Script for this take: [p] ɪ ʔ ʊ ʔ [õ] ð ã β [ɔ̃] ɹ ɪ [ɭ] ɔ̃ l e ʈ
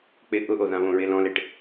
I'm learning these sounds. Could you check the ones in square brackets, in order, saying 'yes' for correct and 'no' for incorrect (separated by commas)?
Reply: no, no, no, no